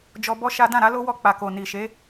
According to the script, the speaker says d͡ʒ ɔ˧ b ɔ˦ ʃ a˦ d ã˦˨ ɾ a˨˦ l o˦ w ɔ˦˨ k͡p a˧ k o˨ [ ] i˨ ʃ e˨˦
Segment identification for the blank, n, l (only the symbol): n